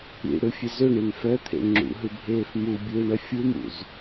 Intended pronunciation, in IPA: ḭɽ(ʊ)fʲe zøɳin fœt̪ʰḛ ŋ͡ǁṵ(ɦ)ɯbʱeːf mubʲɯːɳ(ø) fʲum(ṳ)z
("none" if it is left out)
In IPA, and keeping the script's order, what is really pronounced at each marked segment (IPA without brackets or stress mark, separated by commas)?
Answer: ɯ, ɦ, œ, ṵ